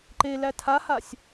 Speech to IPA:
ǃ e l æ tʰ a h a sʲ

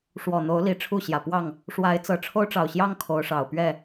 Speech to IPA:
ʂ w ɔ˨˩ n̪ o˨˦ ʊ̯ l i˨˦ ʈ͡ʂʰ u˥˨ ɕ j ä˨˩ p w ɑ˥˨ ŋ | ʂ w a˨˦ ɪ̯ t͡s ɤ˨˩ ʈ͡ʂʰ o˦ ʊ̯ ʈ͡ʂ ɑ˨˩ ʊ̯ ɕ j ɑ˦ ŋ kʰ o˨˦ ʊ̯ ʂ ɑ˨˩ ʊ̯ p ɥ ɛ˥˨

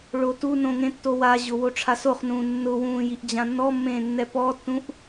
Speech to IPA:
ɭ o t u n õ ŋ ẽ tː o w a ʑ ʊ w o ʈ͡ʂʰ a s o χ n ũː nː ʊ w ũː j i ʔ d͡ʑ ã nː ɔ mː ẽː nː ɛ p ɔ tː ũ ʔ

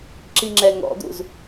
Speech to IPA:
ǁ i ŋ͡ǁ ɛ ŋ ɔ̰ d̪ ṵ z

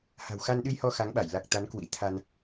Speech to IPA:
h a̤˨˩ w x a˧ n ɗ ɨ˧ j h ɔ˧ x a˨˦ ŋ ɓ a˧˩ j l a˨˩ k̚ t̪ a˨˦ n k w ḭ˧˥ t̪ʰ a˧ n

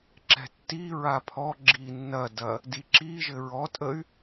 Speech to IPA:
ǁ ɛ̤ tː i ɹ a pʰ ɔ ɡ͡ǁ i nː ɐ d ɐ | d i ǁ i ʒ ɘ ɹ ɔ tʼ ə y̯

